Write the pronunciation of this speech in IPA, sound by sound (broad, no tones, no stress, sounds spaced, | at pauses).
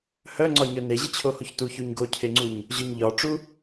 h œ ŋ͡ǀ ɒ ɲ œ n e ʑ ɯ t͡ɕʰ o h o ç t u ç o ɲ ɡ o cʰ e ŋ͡ǀ u ɲ | ʑ œ ɲ ʎ ɒ ʈ͡ʂ u